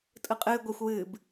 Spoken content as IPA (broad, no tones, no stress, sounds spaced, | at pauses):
tʼ ɯ qʼ ɨː ɡʷ ɛ xʷ w ɨː b